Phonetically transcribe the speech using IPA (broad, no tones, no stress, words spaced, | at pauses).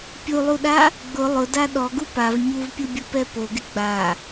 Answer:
pʲulˠuɗa | ɡ͡bʊ lˠʊda ɗɔɡu pav ɲuvpʲubʲupɛ poɡɪ ɡ͡ba